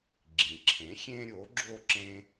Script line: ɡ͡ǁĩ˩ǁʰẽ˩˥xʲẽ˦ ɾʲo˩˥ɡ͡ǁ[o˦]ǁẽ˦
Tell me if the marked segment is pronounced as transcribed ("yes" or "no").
no